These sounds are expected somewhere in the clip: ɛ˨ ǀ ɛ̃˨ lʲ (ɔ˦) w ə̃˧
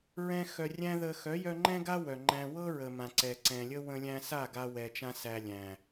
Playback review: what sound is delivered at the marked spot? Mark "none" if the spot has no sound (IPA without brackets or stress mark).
ə˦